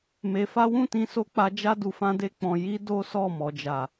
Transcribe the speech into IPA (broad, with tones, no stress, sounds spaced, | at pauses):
m e˧ f a˦ w ũ˦˨ t ĩ˧ s o˧ k͡p a˧ d͡ʒ a˦ d u˧ f ã˦ d e˦ k͡p ɔ̃˧ j i˦ d o˦ s ɔ˦˨ m ɔ˨˦ d͡ʒ a˦˨